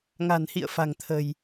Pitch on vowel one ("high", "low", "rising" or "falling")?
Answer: low